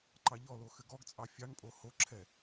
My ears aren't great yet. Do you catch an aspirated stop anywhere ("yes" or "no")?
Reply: yes